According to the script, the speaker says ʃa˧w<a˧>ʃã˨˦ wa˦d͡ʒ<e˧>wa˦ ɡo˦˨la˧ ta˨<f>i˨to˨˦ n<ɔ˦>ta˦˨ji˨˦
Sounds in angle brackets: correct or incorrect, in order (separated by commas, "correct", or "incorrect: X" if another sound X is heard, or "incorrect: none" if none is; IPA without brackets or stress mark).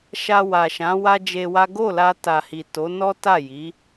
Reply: incorrect: a˨, correct, incorrect: h, correct